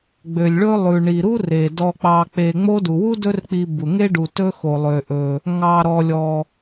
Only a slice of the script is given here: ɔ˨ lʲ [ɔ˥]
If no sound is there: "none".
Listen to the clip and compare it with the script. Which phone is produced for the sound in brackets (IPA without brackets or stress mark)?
ɔ˨